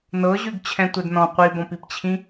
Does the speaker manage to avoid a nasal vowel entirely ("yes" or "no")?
no